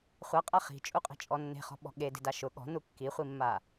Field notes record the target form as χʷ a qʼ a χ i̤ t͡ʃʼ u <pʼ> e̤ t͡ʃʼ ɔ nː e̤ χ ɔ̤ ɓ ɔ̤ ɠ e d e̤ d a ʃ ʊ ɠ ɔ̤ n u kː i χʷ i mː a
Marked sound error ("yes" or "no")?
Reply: yes